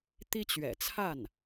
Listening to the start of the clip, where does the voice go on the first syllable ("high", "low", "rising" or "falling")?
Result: high